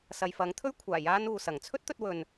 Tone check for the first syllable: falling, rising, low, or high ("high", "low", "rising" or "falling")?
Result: low